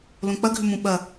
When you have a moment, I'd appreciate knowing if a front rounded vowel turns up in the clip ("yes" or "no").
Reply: yes